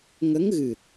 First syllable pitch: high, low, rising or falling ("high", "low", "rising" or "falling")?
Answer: rising